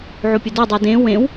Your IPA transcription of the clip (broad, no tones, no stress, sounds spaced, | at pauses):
ʕ o pʲ ə d o dˤ o d ẽ w ẽ w